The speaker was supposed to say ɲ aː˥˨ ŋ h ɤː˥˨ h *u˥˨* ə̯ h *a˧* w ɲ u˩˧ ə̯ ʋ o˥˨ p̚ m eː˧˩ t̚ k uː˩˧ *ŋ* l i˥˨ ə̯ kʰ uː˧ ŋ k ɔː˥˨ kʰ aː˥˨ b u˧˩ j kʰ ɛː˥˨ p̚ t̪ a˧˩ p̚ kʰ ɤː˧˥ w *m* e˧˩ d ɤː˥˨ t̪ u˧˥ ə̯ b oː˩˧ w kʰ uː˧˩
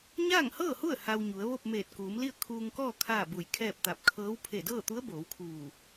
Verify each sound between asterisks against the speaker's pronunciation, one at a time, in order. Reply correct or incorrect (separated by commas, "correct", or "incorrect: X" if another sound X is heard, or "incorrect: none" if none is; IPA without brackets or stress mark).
correct, correct, incorrect: m, incorrect: pʰ